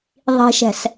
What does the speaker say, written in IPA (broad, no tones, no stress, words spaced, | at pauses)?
ðˤi̤ʃɛ̤s